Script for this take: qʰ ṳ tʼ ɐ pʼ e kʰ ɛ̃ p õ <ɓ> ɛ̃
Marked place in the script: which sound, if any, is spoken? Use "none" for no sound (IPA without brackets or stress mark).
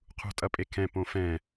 f